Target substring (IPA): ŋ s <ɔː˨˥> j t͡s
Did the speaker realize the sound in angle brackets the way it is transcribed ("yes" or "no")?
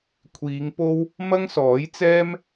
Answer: yes